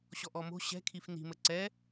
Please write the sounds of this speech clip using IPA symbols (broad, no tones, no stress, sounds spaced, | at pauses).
ɕ ɔ ʔ ɔ m o̤ ɕ ɛ̤ kʰ i f n i̤ m ə ǀ ɛ